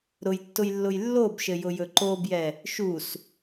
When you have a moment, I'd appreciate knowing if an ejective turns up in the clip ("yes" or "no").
no